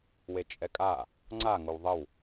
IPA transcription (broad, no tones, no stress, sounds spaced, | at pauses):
w e t͡ʃʼ ɛ kʼ a | ŋ͡ǀ a ŋ o w ðˤ ə w